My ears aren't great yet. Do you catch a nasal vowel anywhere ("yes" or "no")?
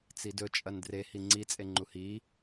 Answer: no